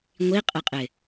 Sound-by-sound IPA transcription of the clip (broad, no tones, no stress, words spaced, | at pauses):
ŋʷiqʼɪqʼɪ